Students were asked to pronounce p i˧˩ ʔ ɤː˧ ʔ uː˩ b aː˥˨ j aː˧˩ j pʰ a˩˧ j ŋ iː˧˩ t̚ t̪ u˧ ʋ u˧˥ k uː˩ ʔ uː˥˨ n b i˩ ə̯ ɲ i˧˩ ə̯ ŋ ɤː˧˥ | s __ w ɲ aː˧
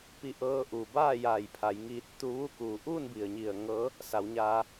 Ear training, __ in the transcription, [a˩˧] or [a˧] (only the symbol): a˩˧